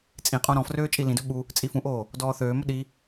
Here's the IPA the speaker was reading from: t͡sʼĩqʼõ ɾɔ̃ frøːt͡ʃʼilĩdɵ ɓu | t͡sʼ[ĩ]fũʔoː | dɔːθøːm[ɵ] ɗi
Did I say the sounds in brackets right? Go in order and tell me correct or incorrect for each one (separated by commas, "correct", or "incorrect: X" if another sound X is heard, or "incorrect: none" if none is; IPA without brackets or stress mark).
incorrect: i, correct